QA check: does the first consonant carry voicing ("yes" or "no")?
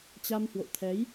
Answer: no